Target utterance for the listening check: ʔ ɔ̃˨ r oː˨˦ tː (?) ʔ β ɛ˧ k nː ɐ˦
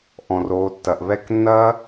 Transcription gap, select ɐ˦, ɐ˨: ɐ˨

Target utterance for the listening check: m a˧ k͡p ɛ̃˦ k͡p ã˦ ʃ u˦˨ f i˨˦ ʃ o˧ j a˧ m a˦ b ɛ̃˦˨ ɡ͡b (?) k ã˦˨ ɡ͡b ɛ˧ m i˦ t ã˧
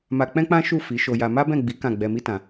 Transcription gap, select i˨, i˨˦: i˨˦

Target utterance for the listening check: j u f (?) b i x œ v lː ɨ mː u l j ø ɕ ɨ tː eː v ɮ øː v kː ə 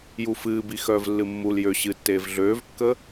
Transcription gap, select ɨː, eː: ɨː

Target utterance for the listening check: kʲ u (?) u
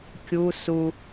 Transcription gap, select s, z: s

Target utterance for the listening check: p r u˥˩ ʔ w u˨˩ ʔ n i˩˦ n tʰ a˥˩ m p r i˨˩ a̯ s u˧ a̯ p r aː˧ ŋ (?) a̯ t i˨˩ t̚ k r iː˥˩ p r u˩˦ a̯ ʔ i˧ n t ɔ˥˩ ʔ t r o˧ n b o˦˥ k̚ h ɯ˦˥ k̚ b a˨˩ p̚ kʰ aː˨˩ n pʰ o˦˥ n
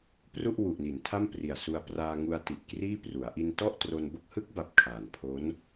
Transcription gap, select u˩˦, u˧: u˧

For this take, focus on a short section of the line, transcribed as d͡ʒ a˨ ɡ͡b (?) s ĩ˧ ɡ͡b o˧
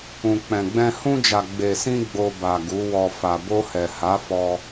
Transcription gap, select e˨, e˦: e˨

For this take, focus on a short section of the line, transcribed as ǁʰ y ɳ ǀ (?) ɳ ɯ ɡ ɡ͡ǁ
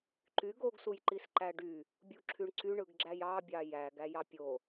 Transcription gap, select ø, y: y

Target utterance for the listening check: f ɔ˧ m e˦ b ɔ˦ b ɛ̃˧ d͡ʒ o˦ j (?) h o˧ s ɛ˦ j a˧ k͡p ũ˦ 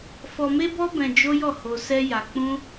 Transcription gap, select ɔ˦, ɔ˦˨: ɔ˦˨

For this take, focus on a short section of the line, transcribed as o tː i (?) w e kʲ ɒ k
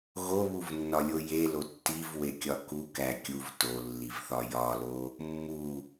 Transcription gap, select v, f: v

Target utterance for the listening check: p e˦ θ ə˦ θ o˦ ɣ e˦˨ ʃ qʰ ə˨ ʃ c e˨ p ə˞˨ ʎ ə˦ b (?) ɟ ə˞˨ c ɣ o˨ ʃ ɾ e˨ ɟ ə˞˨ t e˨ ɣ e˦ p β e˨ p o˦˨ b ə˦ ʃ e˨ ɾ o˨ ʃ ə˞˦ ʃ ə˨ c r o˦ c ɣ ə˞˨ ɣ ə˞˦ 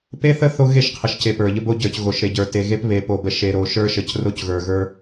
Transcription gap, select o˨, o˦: o˦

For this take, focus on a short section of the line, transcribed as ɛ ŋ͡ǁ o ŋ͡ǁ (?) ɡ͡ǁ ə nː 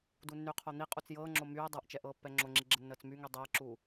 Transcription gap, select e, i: i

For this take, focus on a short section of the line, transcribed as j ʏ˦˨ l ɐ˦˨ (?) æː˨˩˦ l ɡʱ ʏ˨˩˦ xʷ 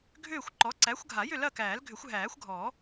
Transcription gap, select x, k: k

